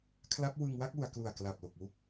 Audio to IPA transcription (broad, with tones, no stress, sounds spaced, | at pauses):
kʰ l a˦˥ p̚ w ɯ˧ ŋ w a˥˩ k̚ w u˩˦ a̯ k l u˨˩ a̯ k l a˨˩ p̚ l o˨˩ k̚ w u˥˩ k̚